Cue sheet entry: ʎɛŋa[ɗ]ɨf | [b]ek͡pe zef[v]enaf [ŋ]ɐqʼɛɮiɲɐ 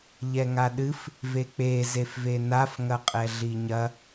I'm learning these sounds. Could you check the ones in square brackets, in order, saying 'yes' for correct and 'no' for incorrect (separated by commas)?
yes, no, yes, yes